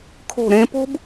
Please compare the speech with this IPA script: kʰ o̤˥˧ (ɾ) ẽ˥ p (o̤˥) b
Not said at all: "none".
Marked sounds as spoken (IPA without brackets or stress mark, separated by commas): ɾ, o̤˥